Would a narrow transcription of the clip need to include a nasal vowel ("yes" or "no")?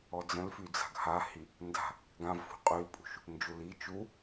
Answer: yes